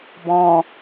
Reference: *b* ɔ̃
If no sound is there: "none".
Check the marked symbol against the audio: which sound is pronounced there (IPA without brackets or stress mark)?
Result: b